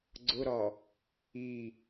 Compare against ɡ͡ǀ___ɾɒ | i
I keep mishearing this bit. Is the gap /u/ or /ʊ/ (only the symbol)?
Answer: ʊ